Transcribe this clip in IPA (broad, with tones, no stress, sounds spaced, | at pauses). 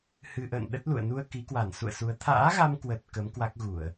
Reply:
h ɨ˧ ʔ ə̰ː˧˨ n ɗ ə˦˥ t̚ l ṵ˧˨ ə̯ n u˧ ə̯ k i˨˦ k w a˧˩ n s ṵ˧˨ ə̯ s u˨˦ ə̯ t̪ʰ a̰ː˧˥ ɣ a˧ m k w ə˨˩ t̚ k ə˨˦ m k w a˦˥ k̚ ɣ u˧˩˨ ə̯